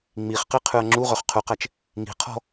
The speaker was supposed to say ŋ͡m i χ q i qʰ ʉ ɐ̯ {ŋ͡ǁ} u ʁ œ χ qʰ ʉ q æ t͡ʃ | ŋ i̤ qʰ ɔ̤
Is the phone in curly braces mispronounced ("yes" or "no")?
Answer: no